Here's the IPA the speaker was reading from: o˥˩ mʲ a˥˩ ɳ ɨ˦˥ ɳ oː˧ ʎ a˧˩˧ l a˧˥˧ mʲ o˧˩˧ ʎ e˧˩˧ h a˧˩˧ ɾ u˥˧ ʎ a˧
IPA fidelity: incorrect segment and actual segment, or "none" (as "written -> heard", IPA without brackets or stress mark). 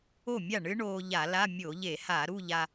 none